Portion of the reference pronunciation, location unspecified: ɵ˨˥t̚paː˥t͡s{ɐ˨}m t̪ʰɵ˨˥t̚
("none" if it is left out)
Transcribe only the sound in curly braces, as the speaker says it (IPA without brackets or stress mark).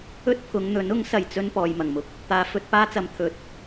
ɐ˨